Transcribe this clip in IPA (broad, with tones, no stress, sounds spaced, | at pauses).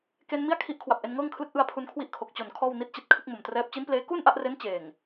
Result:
k e˧ n m i˥˩ a̯ kʰ i˦˥ ʔ kʰ w a˨˩ p̚ ʔ e˧ n ŋ ɤː˥˩ ŋ kʰ l ɯ˦˥ k̚ ʔ ɯ˧ a̯ pʰ u˧ n kʰ w i˥˩ ʔ kʰ o˨˩ k̚ t͡ɕ o˨˩ n kʰ ɔː˥˩ w n i˦˥ t̚ t͡ɕ i˨˩ t̚ kʰ ɯ˥˩ k̚ m o˨˩ m t r ɛː˦˥ p̚ t͡ɕ i˦˥ n p l eː˦˥ k uː˥˩ n ʔ a˥˩ ʔ r e˦˥ n t͡ɕ eː˨˩ ŋ